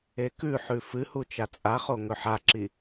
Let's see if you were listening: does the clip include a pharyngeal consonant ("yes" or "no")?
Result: yes